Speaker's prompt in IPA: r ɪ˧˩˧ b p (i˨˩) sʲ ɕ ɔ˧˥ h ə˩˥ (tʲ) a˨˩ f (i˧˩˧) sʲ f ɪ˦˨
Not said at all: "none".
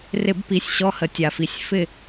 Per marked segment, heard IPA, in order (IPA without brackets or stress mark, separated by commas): i˨˩, tʲ, i˨˩